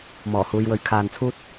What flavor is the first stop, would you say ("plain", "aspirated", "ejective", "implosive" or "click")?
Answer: aspirated